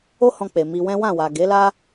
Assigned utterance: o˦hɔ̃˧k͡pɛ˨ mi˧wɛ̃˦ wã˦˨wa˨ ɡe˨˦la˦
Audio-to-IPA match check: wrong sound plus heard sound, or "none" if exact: ɛ˨ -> e˨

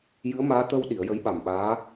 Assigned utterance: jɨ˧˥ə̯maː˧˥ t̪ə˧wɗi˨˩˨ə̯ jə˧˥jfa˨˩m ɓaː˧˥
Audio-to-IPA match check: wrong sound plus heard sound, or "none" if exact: f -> ɓ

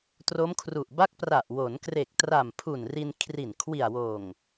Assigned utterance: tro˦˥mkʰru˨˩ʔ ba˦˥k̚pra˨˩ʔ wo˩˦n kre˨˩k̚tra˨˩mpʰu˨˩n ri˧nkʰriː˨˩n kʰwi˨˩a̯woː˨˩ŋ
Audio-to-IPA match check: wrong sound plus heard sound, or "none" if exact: iː˨˩ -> i˨˩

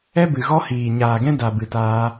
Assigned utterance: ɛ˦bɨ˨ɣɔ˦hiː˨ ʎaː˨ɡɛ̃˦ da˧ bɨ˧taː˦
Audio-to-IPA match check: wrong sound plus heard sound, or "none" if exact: ʎ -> ɲ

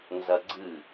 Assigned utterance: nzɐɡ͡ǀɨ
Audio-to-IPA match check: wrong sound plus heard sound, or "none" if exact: none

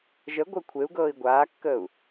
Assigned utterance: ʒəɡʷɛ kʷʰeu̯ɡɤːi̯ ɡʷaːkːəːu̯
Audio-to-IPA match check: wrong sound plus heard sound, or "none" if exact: none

